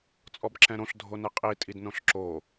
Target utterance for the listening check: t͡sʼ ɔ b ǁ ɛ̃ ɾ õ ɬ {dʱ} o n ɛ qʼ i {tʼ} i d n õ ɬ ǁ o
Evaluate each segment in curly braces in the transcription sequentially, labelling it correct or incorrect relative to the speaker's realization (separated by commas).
correct, correct